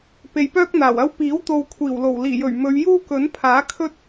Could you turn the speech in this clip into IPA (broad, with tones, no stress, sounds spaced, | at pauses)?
p e˨ j p œː˥ k̚ n̪ aː˨˩ w ɐ˥ w p iː˨˥ w t̪ o˨ w kʷʰ iː˨˩ w l o˨˩ w l iː˨˩ j ɵ˨˩ ɥ m ɵ˨˧ ɥ j uː˥ k ɵ˨˥ n pʰ aː˨˥ kʰ ɵ˥ t̚